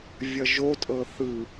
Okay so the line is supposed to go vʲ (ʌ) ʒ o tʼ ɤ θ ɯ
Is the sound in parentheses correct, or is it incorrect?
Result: correct